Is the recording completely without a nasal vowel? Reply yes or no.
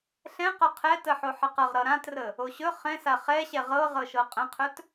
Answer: no